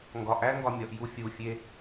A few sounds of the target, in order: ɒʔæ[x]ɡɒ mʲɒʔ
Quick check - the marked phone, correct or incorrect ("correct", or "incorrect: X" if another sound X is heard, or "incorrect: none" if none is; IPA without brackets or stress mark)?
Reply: incorrect: ŋ